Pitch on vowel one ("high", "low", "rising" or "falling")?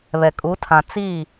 low